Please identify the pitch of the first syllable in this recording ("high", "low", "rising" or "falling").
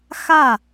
falling